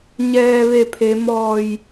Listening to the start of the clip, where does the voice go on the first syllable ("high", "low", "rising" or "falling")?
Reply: low